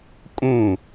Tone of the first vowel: falling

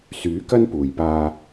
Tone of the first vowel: rising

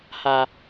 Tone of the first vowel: high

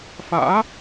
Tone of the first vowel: rising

